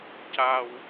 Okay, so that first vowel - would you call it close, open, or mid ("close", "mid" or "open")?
open